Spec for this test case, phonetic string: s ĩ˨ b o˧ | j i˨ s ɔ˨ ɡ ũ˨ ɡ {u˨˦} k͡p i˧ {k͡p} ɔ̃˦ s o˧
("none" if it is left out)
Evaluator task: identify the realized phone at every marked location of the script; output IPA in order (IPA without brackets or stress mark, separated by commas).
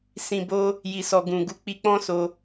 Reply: u˨˦, k͡p